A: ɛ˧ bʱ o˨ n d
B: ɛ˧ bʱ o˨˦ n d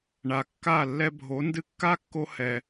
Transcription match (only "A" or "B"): B